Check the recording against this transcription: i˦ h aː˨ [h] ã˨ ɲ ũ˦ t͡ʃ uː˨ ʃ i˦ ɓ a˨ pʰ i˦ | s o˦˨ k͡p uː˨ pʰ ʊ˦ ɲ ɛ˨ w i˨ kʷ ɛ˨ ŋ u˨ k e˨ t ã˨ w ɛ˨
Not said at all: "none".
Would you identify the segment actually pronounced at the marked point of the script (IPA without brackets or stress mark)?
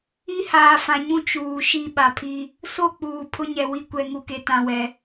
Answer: f